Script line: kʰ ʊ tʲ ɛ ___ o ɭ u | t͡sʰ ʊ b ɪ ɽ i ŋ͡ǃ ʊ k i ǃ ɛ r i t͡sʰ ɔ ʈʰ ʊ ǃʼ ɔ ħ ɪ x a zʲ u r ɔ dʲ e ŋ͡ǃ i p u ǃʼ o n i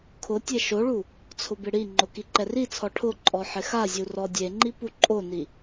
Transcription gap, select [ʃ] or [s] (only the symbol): ʃ